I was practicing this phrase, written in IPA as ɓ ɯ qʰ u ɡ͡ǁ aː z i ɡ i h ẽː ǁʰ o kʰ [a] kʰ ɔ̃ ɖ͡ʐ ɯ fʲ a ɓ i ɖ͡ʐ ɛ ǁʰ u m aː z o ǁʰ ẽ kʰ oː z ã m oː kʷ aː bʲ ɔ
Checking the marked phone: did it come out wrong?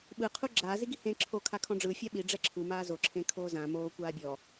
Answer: no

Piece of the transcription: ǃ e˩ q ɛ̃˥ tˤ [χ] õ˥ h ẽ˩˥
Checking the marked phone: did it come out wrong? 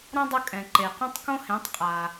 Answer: yes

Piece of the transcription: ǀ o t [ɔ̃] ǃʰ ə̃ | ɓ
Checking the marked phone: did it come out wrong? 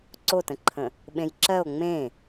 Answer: yes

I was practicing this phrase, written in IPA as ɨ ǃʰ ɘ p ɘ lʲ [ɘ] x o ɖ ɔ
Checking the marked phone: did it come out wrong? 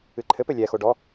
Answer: yes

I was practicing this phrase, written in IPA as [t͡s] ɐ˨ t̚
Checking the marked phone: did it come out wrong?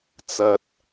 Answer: no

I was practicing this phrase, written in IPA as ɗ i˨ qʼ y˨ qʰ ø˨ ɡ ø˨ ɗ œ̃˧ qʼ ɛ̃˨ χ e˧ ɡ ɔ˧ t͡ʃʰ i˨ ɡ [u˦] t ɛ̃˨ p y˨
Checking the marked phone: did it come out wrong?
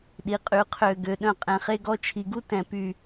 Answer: no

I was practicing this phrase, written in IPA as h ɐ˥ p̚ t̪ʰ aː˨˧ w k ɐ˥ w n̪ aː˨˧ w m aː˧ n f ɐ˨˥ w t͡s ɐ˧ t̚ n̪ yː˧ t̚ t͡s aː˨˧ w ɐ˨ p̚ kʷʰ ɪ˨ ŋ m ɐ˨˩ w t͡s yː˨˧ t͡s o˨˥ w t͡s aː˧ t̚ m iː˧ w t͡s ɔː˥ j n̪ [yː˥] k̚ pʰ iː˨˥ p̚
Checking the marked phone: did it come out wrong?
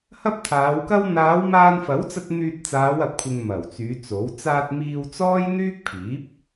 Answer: no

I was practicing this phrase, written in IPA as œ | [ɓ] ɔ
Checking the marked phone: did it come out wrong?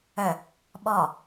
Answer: no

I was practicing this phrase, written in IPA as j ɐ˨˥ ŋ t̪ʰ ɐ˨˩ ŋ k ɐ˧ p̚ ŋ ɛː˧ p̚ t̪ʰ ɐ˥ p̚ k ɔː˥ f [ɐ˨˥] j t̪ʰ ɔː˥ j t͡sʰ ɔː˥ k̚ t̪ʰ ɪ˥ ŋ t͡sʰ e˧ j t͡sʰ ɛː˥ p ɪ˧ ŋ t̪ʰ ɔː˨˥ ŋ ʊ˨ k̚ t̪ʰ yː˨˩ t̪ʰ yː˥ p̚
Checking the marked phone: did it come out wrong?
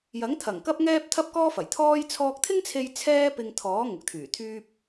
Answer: yes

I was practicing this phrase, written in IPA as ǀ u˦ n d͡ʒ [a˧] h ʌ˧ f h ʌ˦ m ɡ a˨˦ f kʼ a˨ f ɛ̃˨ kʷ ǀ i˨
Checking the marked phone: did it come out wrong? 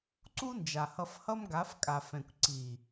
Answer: yes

